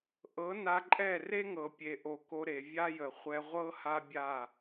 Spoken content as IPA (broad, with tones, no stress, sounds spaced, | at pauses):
ʔ ɤ˨˦ n a˧ ǃʼ ɛ˦˨ r e˦ ŋ ɤ˨ pʲ e˨ ʔ o˨ k o˧ ɾ e˨ vʲ a˦ j ə˨ χʷ ɛ˧ ʁʷ ɤ˦ h a˦ bʲ a˦˨